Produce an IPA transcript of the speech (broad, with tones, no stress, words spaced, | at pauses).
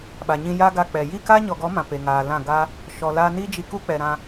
ɓa˨ɲĩ˧ ja˦ɡa˧ k͡pɛ˨ ji˦˨ka˦ɲɔ˨ɡɔ˨˦ mã˨pe˨ŋaː˨lã˦˨ ɡa˦ | ʃɔ˨laː˧ni˦ d͡ʒi˧ku˦k͡pɛ˨ɾã˧